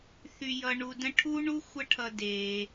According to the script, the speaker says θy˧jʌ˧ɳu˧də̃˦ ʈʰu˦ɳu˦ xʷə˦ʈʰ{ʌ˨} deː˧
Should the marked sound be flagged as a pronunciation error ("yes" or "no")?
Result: yes